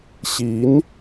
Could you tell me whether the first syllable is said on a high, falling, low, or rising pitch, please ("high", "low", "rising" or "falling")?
rising